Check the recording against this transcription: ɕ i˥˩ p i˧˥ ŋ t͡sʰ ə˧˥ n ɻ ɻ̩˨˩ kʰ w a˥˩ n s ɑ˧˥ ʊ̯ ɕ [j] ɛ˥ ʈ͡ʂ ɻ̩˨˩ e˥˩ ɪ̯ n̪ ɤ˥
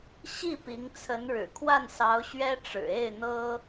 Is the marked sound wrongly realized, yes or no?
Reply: yes